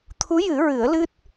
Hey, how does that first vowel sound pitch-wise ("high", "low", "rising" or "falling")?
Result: rising